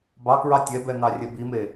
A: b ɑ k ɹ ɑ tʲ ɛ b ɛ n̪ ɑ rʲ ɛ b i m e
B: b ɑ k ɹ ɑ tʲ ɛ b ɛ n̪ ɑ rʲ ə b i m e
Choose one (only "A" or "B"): A